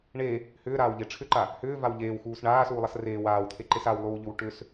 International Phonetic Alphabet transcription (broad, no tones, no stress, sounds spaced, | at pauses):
ɳ e | h ʏː ɾ aː w ʎ e ʈ͡ʂʰ ʏ ǃ a | h ʏː v a w ʎ eː w x uː s ɳ aː s uː lˠ a s r eː w aː w t̪ʰ e ǃ e s a w lˠ uː ʎ ʏ w ʈ ʏ s